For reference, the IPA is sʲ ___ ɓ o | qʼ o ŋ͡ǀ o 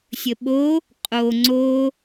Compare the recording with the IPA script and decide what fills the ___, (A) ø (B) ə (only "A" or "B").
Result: B